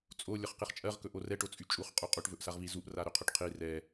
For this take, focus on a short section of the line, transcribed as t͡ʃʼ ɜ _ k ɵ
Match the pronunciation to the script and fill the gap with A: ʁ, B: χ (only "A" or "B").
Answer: A